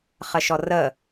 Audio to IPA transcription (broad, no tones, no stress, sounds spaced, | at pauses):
χ ə ʃ ɔ r ə